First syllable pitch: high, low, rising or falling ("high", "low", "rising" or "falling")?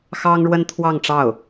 high